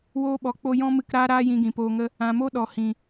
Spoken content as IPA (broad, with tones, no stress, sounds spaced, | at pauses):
w oː˧ ɓ ɔ˨ k͡p o˧ j ɔ̃˦ m ɨ˧ k ɾ aː˦ ɾ aː˦ j ĩ˧ ɡ ĩ˨ p oː˧ ŋ ə˦ | ã˨ m o˦ ɗ ɔ˨ h ĩ˨